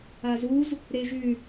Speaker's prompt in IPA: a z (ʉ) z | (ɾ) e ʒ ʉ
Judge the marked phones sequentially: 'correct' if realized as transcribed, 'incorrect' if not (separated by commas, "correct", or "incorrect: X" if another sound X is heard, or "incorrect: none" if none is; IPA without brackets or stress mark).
incorrect: u, correct